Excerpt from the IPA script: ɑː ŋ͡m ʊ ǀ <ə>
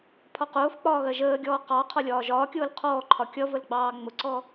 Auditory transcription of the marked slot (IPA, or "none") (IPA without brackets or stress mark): ɔ